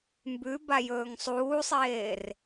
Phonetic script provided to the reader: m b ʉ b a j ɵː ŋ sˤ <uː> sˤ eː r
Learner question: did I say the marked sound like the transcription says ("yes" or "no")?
yes